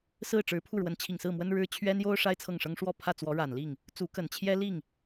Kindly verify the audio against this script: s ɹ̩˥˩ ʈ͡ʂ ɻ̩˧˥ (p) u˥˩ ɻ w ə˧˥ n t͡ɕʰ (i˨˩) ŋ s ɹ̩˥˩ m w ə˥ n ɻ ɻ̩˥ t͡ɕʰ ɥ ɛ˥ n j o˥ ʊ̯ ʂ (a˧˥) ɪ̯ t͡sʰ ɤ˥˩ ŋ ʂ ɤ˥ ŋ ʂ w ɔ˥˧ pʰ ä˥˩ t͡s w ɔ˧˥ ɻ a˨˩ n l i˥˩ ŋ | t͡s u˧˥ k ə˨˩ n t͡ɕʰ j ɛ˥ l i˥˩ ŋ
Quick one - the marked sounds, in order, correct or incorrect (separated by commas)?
incorrect, correct, incorrect